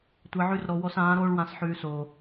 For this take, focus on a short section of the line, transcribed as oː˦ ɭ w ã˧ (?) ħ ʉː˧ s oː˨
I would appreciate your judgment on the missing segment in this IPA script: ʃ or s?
s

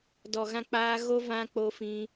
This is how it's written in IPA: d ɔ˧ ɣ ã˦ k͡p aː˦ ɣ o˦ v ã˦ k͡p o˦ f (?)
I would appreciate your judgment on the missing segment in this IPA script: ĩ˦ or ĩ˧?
ĩ˦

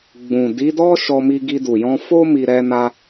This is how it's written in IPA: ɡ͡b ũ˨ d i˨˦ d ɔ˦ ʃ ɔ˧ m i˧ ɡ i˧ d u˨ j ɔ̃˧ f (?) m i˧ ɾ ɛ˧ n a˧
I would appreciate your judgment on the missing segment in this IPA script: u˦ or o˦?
o˦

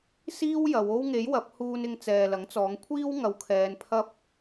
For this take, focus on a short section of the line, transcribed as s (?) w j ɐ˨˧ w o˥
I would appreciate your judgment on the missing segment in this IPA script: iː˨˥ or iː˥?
iː˥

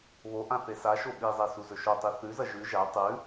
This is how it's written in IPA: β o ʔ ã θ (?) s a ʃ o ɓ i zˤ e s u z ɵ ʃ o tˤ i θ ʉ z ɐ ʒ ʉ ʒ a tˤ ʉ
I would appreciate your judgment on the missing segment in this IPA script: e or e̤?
e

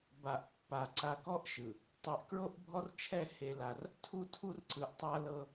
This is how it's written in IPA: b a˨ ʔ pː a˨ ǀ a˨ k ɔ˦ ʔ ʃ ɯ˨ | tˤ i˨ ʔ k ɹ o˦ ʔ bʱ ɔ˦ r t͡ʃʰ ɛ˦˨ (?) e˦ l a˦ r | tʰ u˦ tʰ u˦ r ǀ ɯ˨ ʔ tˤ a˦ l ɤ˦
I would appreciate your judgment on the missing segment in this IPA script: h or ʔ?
h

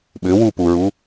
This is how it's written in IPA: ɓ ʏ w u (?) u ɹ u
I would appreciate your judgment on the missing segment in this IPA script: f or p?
p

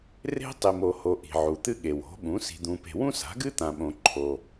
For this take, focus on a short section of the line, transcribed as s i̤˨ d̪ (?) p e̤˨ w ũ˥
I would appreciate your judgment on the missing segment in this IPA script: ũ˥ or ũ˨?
ũ˨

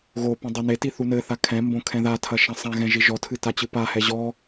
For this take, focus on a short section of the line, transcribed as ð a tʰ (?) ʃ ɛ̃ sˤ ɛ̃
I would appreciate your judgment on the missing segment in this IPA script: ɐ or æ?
ɐ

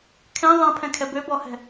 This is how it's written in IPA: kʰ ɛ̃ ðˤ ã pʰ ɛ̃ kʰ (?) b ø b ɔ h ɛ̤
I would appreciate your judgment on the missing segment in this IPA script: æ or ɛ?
ɛ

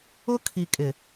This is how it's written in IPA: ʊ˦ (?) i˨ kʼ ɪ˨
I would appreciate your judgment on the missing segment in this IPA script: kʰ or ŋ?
kʰ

